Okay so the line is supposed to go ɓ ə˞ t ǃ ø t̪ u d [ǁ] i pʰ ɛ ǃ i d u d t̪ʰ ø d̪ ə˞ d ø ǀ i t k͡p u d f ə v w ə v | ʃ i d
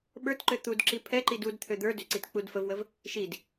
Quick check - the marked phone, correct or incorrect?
correct